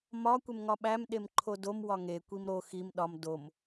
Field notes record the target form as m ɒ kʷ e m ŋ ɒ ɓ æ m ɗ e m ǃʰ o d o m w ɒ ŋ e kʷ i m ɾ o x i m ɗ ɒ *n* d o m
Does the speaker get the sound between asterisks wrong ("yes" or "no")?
yes